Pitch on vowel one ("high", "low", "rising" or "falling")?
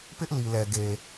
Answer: high